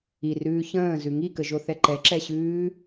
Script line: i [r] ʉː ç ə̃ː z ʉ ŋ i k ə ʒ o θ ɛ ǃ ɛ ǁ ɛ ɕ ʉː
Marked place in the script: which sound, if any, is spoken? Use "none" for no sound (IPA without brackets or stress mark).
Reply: r